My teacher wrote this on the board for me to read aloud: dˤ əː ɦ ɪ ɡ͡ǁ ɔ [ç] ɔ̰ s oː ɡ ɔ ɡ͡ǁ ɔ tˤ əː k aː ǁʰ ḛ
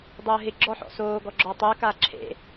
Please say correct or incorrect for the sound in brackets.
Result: incorrect